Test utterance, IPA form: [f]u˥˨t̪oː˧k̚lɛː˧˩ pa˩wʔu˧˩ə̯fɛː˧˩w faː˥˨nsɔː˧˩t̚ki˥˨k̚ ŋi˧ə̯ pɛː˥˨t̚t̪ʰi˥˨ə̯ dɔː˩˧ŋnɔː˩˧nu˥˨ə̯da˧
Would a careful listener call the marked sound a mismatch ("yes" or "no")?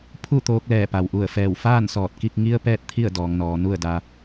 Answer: yes